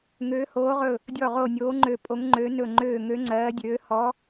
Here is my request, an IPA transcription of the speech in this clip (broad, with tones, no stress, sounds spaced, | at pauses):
ŋ øː˧˥ h oː˧˥ ʁ ɵ˦˨ | dʲ ɔ˦˨ ʁ o˦˨ nʲ oː˧˥ ŋ͡ǃ ø˦˨ pʼ o˧˥ ŋ ŋ͡ǃ ø˧˥ n ɵ˦˨ ŋ͡ǃ øː˦˨ ŋ ø˧˥ ŋ͡ǀ ɜː˧˥ dʲ øː˧˥ h ɔ˧˥